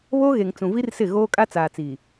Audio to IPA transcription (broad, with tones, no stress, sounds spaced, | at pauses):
β oː˦ ɣ e˨ ŋ t͡s ũ˨ v i˦ r s ɪ˦˨ ɣ oː˦ kʼ a˦ t͡s aː˨ t͡s iː˨